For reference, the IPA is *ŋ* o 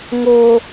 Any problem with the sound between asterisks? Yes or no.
no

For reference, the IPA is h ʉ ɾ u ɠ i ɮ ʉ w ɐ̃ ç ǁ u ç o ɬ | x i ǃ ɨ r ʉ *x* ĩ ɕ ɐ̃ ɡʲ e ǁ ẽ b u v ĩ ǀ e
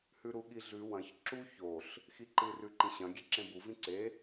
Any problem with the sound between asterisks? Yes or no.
yes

